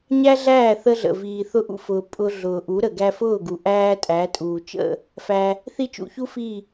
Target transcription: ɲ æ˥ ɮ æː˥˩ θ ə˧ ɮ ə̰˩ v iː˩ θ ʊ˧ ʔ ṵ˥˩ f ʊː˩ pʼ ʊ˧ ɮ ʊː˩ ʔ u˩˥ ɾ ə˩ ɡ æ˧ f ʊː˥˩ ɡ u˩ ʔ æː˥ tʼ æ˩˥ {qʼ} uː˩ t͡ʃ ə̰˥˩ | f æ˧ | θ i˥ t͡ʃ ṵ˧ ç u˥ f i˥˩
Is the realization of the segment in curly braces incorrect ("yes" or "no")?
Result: yes